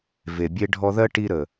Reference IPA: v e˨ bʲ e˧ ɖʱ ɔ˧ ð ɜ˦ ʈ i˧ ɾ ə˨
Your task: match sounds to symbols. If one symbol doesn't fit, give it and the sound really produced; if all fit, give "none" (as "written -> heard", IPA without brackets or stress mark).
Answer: none